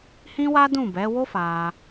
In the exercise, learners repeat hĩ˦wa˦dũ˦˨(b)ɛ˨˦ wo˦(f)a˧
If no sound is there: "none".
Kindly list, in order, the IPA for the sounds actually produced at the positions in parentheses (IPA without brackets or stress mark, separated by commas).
b, f